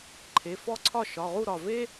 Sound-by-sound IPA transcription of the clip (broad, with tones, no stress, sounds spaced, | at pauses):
ǃʰ e˩˧˩ f ɔ˥˨ ǀʰ ɒ˥˨ ʃ ɒ˩˧˩ ʁ u˥˨ ɾ ɒ˧˩ v e˦